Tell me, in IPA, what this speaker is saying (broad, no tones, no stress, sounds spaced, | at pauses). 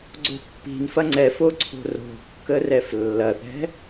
ɡ͡ǀ o̤ pː i̤ n f ɐ ŋ͡ǀ ɛ f o ǀʰ o̤ r o̤ kː ə r ɛ f lː ɐ θ ɛ̤